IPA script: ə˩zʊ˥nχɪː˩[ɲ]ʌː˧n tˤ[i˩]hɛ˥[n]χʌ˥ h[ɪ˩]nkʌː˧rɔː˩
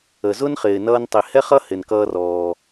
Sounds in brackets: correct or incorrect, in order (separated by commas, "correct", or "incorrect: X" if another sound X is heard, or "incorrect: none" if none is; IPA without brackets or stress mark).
incorrect: n, correct, incorrect: none, correct